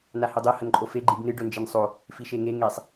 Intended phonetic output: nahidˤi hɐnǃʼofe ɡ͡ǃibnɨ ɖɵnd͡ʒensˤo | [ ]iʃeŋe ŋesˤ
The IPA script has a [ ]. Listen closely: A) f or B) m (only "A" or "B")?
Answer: A